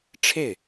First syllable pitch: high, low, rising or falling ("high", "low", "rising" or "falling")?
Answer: falling